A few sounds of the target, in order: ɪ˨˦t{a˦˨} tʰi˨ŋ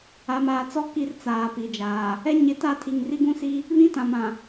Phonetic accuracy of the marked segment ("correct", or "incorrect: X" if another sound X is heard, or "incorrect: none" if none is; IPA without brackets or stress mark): correct